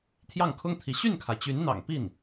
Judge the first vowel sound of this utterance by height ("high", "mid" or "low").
low